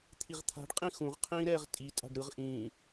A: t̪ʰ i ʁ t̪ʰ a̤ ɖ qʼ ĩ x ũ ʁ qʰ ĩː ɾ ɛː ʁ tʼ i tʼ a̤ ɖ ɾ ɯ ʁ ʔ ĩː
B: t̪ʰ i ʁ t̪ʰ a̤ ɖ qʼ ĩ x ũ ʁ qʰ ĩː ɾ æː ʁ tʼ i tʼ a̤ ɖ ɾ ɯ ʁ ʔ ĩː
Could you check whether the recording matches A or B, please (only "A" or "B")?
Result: A